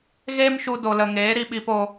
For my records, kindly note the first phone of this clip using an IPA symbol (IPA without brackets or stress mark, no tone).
ɣ